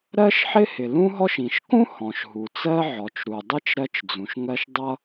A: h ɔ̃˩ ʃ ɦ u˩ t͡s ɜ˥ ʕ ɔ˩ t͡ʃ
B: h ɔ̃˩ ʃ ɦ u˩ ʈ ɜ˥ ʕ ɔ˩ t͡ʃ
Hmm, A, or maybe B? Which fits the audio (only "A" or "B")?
A